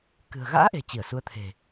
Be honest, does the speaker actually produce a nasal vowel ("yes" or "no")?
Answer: no